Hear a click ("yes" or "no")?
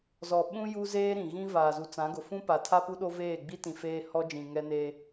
no